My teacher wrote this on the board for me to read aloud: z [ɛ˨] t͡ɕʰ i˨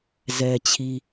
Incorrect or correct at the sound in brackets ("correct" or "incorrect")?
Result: correct